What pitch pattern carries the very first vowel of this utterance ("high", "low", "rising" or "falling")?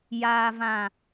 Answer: low